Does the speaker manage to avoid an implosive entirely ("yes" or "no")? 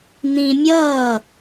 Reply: yes